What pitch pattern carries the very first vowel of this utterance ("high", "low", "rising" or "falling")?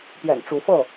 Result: low